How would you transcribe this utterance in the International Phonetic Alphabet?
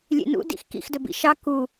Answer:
lʲ ḛ n ṵ d ḭ x k ḭ x d ɵ b ḭ ʃ ɑ k u

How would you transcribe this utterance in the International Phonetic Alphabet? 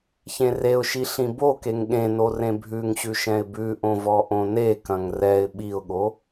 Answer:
ç ẽ r e ʊ̯ ʃ i ɬ ĩ b o k e ŋ ɠ ẽ n o r ẽ bʱ ʉ ŋ ɕ ʉ ʃ ɛ̃ ɪ̯ b ʉ ʔ õ v ɔ ʔ õ n e k ɐ̃ ŋ r ɛ ɪ̯ ɓ i ʊ̯ ɠ o

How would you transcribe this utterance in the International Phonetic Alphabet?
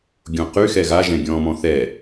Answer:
ɡʲ õ q y x ɛ ɣ a ʒ ɛ̃ ɡʲ ɔ̃ː m ɔ̃ θ ɛ

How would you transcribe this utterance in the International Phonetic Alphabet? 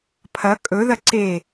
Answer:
pʰ ɐ kʼ ɵ ð ɐ ǀ e

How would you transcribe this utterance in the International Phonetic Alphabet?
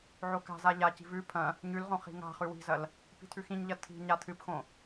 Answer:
ʕ o k a̤ z a ʎ a c i̤ v ʉ pʰ ɐ̃ | ɲ ʉ l ʁ õ χ i̤ ŋ a̤ χ ʉ w i̤ z ɐ l | p i̤ tʰ ʉ x ĩ ɲ ʎ ɐ tʰ i̤ ɲ a tʰ ɨ p x õ

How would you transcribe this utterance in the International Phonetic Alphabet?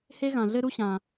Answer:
h e˥ ɣ ã˩ ɮ ɘ˥ ɾ u˥ ɕ ã˩

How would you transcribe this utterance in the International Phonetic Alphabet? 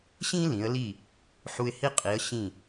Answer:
ɕ ĩ˥ l ĩ˩˥ ə̯ l i˥˩ | ħ u˧ ɪ̯ h i˥ qʼ i˩˥ ə̯ ɕ ĩ˥˩

